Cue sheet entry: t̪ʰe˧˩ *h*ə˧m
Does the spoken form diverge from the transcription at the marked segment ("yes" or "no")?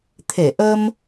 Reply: yes